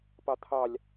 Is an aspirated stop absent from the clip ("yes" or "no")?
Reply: no